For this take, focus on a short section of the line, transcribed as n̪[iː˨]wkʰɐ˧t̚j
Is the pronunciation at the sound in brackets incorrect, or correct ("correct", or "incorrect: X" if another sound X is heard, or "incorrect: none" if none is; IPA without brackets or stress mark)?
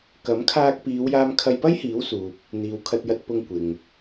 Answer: correct